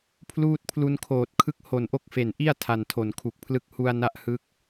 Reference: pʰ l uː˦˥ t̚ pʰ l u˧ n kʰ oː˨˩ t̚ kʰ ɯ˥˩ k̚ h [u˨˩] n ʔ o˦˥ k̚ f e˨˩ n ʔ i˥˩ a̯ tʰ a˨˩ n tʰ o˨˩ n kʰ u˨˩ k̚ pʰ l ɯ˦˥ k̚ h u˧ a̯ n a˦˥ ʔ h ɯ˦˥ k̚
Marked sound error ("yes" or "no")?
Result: yes